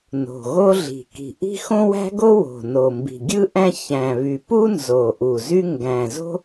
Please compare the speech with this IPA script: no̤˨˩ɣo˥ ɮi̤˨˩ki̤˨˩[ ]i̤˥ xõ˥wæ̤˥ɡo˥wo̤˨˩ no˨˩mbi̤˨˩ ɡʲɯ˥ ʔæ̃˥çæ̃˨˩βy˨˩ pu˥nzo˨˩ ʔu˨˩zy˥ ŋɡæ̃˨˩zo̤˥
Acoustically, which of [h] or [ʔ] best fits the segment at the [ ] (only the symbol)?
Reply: ʔ